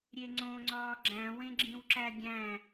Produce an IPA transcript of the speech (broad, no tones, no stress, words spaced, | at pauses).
ɾʲeŋ͡ǀõ ŋ͡ǀɒːɡ͡ǁæ̃ wẽɡ͡ǁĩwǁæɡʲæ̃